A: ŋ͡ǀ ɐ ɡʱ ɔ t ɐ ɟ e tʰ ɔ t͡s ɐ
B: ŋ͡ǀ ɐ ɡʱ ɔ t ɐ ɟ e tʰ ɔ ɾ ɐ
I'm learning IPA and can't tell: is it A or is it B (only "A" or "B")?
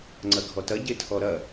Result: B